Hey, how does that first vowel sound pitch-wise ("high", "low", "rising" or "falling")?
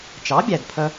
rising